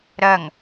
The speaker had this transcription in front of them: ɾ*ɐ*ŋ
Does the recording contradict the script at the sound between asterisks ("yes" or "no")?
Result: no